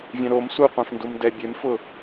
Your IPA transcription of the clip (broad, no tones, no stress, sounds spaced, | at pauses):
vʲ ɛ̃ ɾ o m s u qʷ ã f n d u m d ɛ bʲ e m f ʊ